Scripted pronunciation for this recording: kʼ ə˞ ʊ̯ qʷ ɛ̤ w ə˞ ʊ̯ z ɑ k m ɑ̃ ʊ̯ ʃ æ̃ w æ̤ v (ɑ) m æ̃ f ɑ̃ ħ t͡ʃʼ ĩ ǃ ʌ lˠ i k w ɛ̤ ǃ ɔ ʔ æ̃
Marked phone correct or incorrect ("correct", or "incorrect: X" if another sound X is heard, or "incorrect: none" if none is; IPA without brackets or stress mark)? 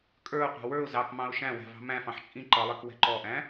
incorrect: ɑ̤